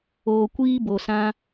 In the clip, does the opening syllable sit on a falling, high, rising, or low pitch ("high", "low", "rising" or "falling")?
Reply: low